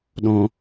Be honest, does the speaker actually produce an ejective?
no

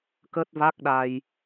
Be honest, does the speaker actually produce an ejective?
no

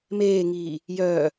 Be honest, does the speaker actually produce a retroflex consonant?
no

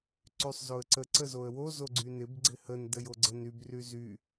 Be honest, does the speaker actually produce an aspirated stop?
no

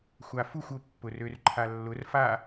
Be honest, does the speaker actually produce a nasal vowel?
no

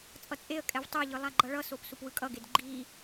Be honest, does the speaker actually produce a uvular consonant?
no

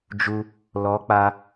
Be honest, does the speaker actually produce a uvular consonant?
no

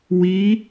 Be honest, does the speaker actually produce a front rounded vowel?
no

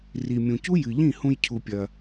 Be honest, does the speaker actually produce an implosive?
no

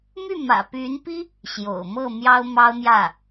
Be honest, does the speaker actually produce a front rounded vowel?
yes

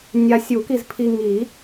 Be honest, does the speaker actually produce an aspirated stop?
yes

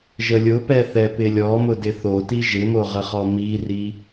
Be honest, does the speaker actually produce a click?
no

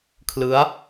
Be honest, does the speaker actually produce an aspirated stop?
yes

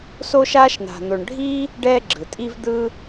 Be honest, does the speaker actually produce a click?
yes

